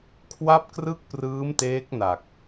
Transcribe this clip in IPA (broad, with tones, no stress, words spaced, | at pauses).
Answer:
kʰwa˥˩p̚krɯ˥˩k̚prɯː˦˥m teː˦˥k̚na˨˩k̚